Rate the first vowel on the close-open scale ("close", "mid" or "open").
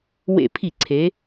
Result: mid